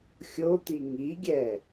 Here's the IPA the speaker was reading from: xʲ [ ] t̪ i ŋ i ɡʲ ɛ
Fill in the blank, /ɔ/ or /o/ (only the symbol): o